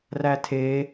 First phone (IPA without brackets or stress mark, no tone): r